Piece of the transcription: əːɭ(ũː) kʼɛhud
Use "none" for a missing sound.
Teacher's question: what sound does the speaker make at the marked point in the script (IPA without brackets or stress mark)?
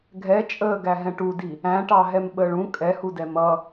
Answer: ũ